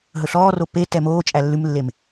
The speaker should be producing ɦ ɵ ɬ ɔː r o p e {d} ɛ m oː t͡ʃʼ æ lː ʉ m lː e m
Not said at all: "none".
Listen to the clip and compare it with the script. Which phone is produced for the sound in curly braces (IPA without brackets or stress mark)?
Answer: t